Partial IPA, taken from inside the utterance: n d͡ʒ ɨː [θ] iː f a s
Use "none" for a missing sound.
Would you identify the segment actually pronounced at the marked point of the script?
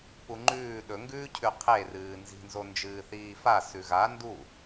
θ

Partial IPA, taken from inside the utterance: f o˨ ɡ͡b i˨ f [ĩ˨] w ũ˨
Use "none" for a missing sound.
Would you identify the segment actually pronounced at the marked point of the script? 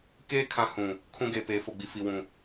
i˨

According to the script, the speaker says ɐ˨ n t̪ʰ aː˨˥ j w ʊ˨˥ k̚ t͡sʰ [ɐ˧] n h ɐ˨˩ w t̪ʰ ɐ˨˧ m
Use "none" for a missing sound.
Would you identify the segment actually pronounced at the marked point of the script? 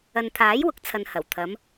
ɐ˧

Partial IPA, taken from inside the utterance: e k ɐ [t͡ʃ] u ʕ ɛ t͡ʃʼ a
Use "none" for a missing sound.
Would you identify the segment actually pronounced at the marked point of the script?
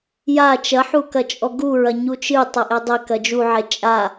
d͡ʒ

